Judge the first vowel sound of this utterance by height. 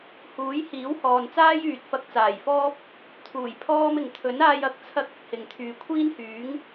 high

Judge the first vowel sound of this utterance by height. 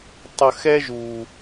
mid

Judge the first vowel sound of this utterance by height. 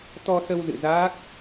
mid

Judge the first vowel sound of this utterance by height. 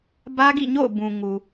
low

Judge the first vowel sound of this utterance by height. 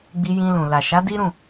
high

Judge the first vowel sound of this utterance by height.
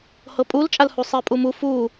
mid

